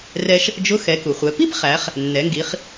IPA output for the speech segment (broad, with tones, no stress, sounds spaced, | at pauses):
r ɛ˧ ʃ | d͡ʒ ʊ˧˥ x ɛ˩˧ k u˩ χʷ ɛ˩˧ p i˥ p χ æ˩˧ χ | nː ɛ˩˧ ŋ ɡ i˩˧ χ